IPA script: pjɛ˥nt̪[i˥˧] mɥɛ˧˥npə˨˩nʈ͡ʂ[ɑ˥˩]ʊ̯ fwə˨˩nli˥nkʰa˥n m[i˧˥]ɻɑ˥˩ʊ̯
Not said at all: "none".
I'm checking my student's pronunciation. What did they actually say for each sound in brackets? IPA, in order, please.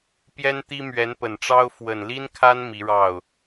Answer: i˥, ɑ˥, i˧˥

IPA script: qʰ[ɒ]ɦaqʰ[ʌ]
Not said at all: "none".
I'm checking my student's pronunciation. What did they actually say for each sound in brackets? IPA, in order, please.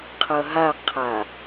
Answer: ʌ, a

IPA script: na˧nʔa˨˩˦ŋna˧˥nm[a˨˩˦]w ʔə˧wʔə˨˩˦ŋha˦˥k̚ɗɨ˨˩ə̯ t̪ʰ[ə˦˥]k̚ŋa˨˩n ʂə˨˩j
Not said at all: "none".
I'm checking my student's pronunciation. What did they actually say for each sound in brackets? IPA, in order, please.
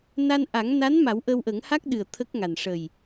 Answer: a˨˩˦, ə˦˥

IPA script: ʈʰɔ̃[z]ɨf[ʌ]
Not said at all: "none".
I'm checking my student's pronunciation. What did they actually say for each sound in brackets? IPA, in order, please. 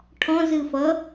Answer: z, ʌ

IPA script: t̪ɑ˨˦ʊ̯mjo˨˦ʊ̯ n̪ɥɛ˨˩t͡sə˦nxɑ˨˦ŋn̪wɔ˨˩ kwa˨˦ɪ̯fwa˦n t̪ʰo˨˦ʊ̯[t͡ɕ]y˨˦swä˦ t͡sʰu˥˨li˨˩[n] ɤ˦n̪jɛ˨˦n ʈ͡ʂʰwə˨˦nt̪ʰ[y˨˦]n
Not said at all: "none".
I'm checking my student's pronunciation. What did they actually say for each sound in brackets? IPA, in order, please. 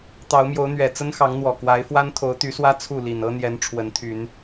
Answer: t̪, n, y˨˦

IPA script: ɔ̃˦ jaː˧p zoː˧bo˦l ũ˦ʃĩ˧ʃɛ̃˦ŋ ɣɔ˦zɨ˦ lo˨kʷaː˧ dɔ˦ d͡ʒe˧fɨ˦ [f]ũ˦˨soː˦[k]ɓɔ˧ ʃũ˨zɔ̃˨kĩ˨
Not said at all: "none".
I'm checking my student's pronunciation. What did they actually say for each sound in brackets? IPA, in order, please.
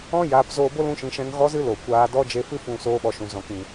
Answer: f, none

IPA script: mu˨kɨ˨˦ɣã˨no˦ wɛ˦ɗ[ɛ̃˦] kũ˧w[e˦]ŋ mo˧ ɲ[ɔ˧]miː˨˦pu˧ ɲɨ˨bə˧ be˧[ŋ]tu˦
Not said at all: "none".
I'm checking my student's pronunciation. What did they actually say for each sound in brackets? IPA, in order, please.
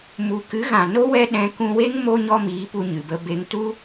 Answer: ɛ̃˧, e˦, ɔ˦, ŋ

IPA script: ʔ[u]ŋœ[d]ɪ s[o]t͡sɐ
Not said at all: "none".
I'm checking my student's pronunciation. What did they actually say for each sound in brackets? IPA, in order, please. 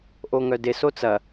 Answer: o, d, o

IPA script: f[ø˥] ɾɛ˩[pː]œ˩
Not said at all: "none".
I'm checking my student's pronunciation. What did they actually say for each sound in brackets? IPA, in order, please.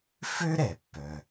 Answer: ø˥, pː

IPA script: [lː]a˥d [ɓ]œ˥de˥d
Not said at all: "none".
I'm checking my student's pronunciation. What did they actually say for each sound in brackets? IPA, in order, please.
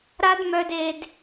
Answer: ɾ, m

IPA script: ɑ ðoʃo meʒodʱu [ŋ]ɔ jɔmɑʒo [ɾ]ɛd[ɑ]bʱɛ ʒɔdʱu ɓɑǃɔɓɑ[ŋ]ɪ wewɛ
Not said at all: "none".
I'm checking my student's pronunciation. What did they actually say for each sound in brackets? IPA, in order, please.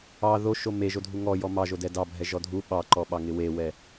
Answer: ŋ, d, ɑ, ŋ

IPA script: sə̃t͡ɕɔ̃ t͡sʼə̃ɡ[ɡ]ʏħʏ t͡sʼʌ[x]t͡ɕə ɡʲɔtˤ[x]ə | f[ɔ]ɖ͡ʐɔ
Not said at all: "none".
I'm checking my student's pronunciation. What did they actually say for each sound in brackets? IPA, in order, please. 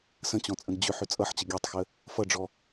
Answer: d͡ʑ, ħ, x, ʌ

